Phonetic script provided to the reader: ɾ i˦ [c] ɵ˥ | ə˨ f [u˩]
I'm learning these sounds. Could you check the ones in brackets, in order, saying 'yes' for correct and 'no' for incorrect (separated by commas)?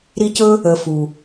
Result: yes, yes